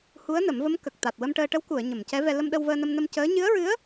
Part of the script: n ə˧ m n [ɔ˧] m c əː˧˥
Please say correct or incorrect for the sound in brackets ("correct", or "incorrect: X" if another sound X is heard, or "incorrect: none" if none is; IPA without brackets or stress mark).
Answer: incorrect: ə˧